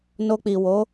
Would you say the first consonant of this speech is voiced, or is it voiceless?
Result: voiced